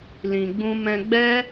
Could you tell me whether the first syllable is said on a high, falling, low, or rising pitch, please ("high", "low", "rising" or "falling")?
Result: low